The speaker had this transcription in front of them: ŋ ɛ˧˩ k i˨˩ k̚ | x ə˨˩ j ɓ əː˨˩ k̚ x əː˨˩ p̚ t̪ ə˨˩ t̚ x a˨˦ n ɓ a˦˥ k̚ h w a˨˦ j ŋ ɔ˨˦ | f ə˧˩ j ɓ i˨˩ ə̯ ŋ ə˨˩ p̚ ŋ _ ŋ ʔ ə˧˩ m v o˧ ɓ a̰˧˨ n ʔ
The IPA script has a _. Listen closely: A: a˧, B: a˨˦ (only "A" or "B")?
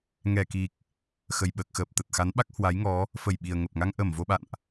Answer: A